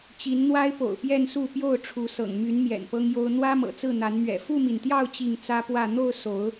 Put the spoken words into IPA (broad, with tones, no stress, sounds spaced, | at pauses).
t͡ɕ i˨˦ n n̪ w a˦ ɪ̯ p o̰˨˩ ʊ̯ p j ɛ˥˨ n s u˥˨ p j o˥˨ ʊ̯ ʈ͡ʂʰ u˨˦ s ɤ̰˨˩ ŋ m y˨˦ n m j ɛ̰˨˩ n p ɤ˦ ŋ j o˦ ʊ̯ n̪ w ä˦ m ɤ̰˨˩ t͡s ɹ̩˥˨ n̪ a˨˦ n m ɥ ɛ̰˨˩ f u˥˨ m i˩ n t̪ j ɑ˥˨ ʊ̯ t͡ɕ i˥˨ ŋ t͡s ä˦ p w ä˥˨ n̪ o˥˨ ʊ̯ s o˨˦ ʊ̯